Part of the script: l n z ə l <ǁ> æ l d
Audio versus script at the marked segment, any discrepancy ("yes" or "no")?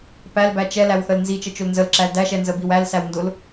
no